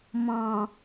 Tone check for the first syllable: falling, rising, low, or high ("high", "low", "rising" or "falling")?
low